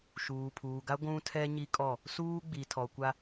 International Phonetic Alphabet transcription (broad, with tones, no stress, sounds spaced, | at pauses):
ʃ uː˨ pʰ uː˨ ɡ a˦ ɡʷ ũ˦ tʰ ɛ˦ ɲ i˦ kʼ ɔ˦˨ | s uː˦ ɡ͡b i˨ tʰ ɔ˨ kʷ a˦